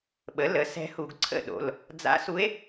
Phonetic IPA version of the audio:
ɓ ə˩˥ l ə˩˥ s ɛ̤˧˥ h u˧˩˧ ɡ ǀʰ ə̰˥˨ ɗ o̰˩˧˩ l | d͡z a̰˧˥ s u˧˥ e̯

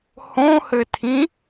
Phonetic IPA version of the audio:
h õ h ɘ tʰ ĩ

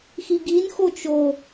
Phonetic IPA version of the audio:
x i ɡ i n x o t͡ʃ o

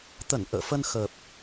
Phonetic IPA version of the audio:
t̪ ə˧˩ n ʔ ə̰ː˧˨ f ə˧ n x ə˨˩ p̚

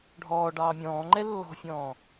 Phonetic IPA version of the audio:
ɖʱ ɔː ɖ ɑː mʲ ɔ̃ː ŋ͡ǃ ɛ lː ɔ̤ fʲ ɔ̃ː

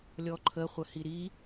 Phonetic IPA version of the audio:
lʲ ɔ ǃʰ ə χʷ ə h i ɾ i

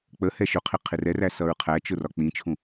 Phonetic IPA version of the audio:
k͡p ə h ɛ ʃ ʊ qʰ ɪ qʰ ɪ r ɛ r æ s ʌ ɹ qʰ æ t͡ʃ ʊ r ɒ k͡p ĩ t͡ʃʰ ũ

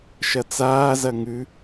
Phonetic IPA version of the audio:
ʃ ɐ t͡s aː z ɐ ŋ ʉ

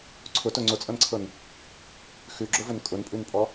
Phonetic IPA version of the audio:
ǀʰ ʊ t ʊ ŋ͡ǀ ʊ t͡sʼ ɤ n ǀʰ ɤ n | x ʉ ɡ͡ǁ ʊ v ʊ n kʼ ʊ n pʼ ʉ n pʼ ɔ

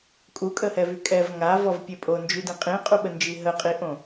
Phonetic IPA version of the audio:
kʼ u kʼ ə h ɛ v y kʼ ɛ v ŋ a v ɔ v pʲ e pʼ o n d͡ʒ y d ĩ qʼ ĩ qʼ u ɓ ə n d͡ʒ i ɦ ə qʼ i ʔ õ

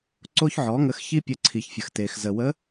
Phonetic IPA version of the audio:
ǀ o˧ ç ʕ ɔ˩˧ ŋ ə˩˧ x ç i˧ pʲ ə˩˧ ǀʰ i˩ ç fʲ ə˩ x t e˩ x z ə˩ w ə˧˥

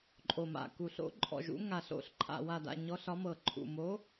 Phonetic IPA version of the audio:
ǃʼ o˨˩ m a̰˨˩ k u˨˩ ɬ o̰˨˦ ǃʼ ɔ̰˨˩ ʒ ṵ˨˦ ŋ a˨˩ ɬ o̰˨˦ ɬ ǃʰ a̰˨˩ w a˨˩ d a̰˨˩ ɲ ɔ˨˦ ɬ ɒ˨˦ m ɤ˨˩ ǃʰ ṵ˨˩ m o˨˦

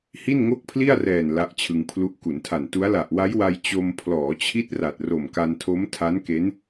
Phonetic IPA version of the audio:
h i˥˩ n ŋ o˥˩ k̚ pʰ l i˥˩ a̯ r ɛː˨˩ n l a˦˥ ʔ t͡ɕʰ ɯ˧ ŋ pʰ l u˦˥ ʔ k u˩˦ n tʰ a˨˩ n t u˦˥ a̯ l a˨˩ ʔ w a˦˥ j w a˧ j t͡ɕ o˧ m pʰ l ɔː˩˦ t͡ɕʰ i˦˥ t̚ r a˨˩ t̚ r o˨˩ m k a˧ n tʰ o˦˥ m tʰ a˦˥ n k e˦˥ n

